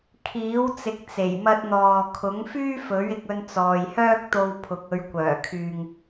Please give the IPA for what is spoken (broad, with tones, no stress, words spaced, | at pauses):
kʰiː˨˥wt͡sɪ˨˥k̚t͡se˨˩j mɐ˧t̚n̪ɔː˨ kʰʊ˨˥ŋfyː˥fɵ˨˥ɥ ɪ˧k̚ɵ˧nt͡sɔː˨j hœː˥k̚t̪o˧wpʰʊ˨k̚ ɵ˨ɥkʷœː˨˩kʰyː˨ŋ